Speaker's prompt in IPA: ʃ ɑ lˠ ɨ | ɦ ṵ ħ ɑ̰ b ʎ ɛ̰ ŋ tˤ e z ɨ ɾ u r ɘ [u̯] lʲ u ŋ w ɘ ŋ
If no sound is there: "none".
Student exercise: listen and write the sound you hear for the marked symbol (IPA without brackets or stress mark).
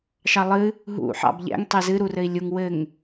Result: i̯